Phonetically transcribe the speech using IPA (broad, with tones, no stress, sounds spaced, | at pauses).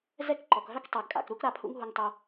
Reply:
z ɛ˥ k ǃ ɔ˩ k ɦ œ˥ k tˤ ø˩ ɡ kʼ a̰˩ k ɾ u˥ k ɾ a˨ pʰ ṵ˦ ŋ ɦ u˨ ŋ tˤ o˨